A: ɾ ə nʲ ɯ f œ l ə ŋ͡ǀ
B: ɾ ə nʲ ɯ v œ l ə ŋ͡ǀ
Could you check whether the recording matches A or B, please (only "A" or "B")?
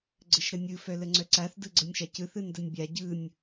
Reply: A